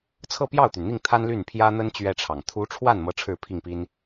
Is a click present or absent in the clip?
absent